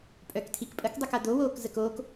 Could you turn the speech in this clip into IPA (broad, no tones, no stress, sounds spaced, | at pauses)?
pʼ œ k tʰ i k pʼ ə k dˤ o k a d̪ o w oː k z ə k oː k